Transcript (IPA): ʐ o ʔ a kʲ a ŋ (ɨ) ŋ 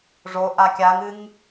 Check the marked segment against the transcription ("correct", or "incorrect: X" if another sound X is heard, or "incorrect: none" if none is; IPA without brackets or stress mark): correct